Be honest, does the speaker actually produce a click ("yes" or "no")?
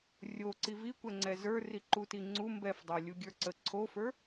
yes